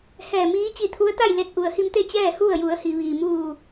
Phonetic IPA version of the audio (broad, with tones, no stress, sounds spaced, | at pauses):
h ɛː˧˩ m iː˧˥ t͡ɕ i˧ t̪ʰ u˧˥ ə̯ t̪ a˥˨ j l e˧ t̚ ʔ u˩ ə̯ h i˧ m t̪ e˥˨ t͡ɕ ɛː˥˨ h u˥˨ ə̯ j u˩˧ ə̯ h i˩ ʋ iː˩ m uː˧˩